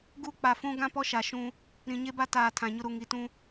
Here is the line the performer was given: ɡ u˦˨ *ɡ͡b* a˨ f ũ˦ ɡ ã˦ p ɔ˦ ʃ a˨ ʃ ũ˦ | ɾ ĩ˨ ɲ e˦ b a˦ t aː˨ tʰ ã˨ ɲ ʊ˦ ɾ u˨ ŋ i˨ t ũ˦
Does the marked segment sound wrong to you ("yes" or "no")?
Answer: yes